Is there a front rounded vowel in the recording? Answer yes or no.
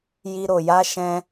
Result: no